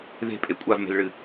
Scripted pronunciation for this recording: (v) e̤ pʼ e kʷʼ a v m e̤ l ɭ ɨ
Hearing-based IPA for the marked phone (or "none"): ð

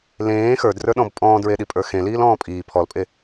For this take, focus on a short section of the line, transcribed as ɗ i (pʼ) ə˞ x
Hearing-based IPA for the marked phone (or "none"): pʼ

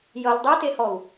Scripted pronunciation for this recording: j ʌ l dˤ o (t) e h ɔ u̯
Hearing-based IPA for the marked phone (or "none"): t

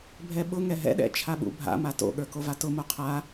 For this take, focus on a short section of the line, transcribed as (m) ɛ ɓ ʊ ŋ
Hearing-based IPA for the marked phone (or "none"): bʱ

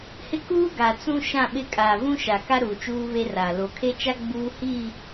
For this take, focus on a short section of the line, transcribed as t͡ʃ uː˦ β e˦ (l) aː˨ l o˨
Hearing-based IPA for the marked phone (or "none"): r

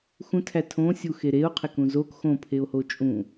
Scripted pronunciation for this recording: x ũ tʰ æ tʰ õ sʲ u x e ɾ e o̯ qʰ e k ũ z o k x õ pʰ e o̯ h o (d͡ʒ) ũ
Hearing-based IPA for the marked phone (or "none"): t͡ʃʼ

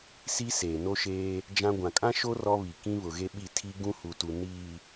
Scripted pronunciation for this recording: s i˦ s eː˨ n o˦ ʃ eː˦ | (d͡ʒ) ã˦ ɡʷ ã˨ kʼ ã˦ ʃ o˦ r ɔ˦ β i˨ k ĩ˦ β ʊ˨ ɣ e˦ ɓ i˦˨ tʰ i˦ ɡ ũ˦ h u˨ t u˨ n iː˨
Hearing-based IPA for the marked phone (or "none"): d͡ʒ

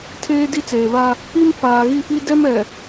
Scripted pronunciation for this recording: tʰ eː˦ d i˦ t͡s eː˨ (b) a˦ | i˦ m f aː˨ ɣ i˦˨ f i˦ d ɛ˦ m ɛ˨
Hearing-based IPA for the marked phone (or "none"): β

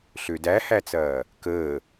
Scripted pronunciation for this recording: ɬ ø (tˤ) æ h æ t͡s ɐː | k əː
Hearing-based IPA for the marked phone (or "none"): d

